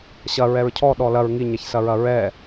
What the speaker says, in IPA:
ɕ ɐ ɹ ɛ ɹ cʰ ɔ ɗ ɔ l ɐ ɹ ŋ i ɲ ɛ ç s ɐ ɹ ɐ ɹ ɛ

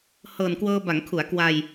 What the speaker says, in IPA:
h ɤː˨˩ n k w ɤː˧ b a˩˦ ŋ kʰ u˩˦ a̯ k w a˧ j

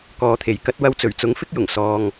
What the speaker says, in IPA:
k ɔː˨ t̪ʰ e˨˩ j k ɐ˧ t̚ w ɐ˧ w t͡s ɵ˨˩ ɥ t͡s ʊ˨˥ ŋ f ɪ˥ k̚ j ʊ˨˩ ŋ s ɔː˨ ŋ

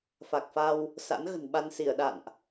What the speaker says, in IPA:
f a˨˩ k̚ f a˧ w | s a̰˧˥ n ɣ ə̤˨˩ n ɓ a˧ n s i˧˩ ə̯ ɗ a̰˧˨ n ʔ

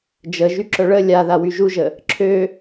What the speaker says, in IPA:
d͡ʒ ə ʒ y ǁ œ ɭ ə lʲ a ð a w y ʒ u ʒ ə | ǁʰ ø

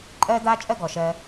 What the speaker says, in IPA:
ǃʼ ɜː˦ d̪ aː˦ t͡ʃʼ ɜ˦ ɡ ɔ˨ ʃ ɜ˧

